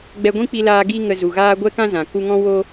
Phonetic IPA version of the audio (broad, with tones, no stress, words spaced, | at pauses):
ɡ͡bɛ˧ɡʷĩ˦k͡pi˧laː˧ ɡi˧ ŋə˧zu˨ɣaː˦ ɡʷɛ˦kã˦zã˨ ku˧ŋɔ̃˦wo˦